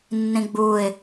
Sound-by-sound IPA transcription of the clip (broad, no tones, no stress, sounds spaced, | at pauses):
nː ĩ ɡ͡b uː ɪ̯